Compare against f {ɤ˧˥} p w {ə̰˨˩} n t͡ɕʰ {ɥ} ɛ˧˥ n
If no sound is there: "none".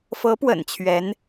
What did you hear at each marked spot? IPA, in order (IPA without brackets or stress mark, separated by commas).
ɤ˧˥, ə̰˨˩, ɥ